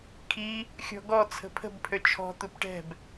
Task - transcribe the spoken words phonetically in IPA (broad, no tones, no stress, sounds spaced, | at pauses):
kʰ i | xʲ ɔ̤ ɡ ɔ t͡sʰ ə̤ pʰ ə̤ b pʰ ø t͡ʃʰ ɔ̤ t̪ u p ʈ ɛ̤ b